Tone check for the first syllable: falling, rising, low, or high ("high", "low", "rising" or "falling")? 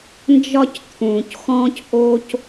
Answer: high